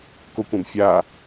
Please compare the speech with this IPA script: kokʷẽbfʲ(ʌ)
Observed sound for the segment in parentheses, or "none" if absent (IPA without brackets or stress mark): a